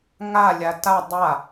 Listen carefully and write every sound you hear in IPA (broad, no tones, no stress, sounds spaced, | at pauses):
ŋ a lʲ a t a dˤ a